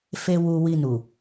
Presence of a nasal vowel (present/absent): absent